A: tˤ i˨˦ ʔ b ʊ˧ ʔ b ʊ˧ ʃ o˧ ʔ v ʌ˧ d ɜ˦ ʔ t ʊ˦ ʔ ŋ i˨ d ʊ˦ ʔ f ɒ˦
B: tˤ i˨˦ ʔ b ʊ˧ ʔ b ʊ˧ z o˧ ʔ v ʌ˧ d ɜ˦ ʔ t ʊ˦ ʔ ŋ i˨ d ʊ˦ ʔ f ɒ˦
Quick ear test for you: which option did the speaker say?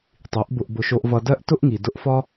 A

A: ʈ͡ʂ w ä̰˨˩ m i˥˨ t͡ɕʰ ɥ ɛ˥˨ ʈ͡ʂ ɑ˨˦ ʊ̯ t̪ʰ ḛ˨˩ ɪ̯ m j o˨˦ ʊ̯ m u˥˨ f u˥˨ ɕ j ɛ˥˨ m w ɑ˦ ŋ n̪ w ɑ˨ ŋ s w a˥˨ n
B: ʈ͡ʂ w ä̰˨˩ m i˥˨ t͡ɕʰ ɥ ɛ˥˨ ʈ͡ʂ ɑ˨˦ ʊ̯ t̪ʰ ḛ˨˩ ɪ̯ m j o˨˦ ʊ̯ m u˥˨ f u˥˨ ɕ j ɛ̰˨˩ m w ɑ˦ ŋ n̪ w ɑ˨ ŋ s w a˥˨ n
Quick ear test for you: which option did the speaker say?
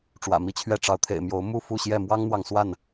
A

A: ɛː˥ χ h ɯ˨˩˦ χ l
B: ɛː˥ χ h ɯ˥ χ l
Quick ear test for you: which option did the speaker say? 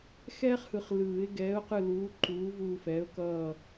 A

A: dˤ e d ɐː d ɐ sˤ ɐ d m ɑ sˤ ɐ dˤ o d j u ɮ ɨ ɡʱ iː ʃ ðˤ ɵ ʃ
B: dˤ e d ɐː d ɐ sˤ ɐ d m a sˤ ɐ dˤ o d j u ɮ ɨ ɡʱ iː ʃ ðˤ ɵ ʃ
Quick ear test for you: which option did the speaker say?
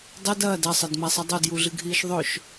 B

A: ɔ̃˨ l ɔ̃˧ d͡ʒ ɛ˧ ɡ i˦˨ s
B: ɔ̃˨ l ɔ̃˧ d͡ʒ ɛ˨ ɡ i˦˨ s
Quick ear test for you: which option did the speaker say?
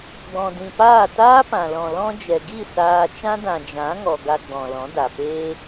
B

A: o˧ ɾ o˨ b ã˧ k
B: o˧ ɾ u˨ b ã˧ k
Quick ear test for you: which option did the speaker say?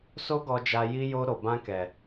A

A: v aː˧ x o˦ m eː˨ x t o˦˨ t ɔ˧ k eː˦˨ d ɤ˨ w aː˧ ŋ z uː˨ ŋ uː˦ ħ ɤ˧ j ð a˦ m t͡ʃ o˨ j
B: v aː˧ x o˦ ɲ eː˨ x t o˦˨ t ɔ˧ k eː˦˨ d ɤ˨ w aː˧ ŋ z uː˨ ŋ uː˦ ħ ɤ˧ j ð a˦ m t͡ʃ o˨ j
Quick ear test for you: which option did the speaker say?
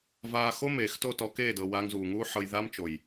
A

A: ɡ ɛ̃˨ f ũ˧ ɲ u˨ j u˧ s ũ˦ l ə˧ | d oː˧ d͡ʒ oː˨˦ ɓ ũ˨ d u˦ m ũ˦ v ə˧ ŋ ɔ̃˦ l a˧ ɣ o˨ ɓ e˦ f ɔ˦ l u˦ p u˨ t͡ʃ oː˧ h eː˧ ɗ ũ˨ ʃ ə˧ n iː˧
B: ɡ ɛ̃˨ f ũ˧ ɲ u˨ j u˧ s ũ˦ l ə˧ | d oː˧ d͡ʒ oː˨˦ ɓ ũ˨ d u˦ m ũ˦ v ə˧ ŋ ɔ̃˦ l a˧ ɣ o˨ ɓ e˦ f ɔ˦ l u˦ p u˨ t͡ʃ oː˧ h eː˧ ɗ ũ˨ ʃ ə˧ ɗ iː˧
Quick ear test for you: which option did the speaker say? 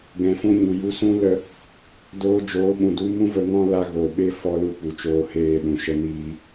A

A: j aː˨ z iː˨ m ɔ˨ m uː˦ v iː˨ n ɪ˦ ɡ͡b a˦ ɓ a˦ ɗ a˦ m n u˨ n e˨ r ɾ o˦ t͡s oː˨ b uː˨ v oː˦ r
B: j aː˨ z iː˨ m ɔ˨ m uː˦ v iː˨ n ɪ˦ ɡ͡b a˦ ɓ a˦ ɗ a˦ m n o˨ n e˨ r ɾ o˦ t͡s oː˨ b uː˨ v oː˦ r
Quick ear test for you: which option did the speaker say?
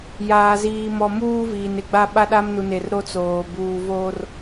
A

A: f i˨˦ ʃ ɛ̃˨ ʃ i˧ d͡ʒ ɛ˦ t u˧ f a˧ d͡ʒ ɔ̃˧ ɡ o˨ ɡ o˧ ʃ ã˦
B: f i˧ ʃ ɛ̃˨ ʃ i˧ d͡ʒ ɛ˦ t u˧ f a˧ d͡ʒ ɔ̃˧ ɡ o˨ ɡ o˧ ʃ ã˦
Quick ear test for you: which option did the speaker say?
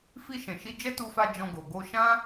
B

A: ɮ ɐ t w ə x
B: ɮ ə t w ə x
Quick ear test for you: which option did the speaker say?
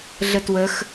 B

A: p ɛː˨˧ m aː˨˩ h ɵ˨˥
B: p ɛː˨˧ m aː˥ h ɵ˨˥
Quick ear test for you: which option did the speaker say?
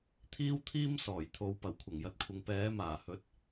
A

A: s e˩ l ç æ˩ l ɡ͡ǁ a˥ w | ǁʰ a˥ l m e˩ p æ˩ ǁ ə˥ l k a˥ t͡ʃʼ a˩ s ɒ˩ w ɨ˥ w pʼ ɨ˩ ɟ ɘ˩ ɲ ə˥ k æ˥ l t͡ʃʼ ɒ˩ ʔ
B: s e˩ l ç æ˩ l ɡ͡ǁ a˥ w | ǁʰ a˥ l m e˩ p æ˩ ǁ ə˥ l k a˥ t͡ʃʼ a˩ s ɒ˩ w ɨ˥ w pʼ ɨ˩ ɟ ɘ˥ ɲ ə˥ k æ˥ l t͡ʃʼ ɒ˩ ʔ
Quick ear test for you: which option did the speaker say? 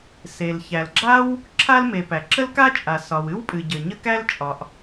A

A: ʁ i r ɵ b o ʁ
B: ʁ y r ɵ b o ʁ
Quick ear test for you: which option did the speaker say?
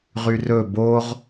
B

